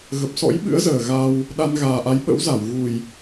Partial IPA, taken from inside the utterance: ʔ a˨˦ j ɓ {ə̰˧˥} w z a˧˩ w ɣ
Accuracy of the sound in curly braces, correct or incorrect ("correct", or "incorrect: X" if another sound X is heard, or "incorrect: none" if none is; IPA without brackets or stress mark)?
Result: correct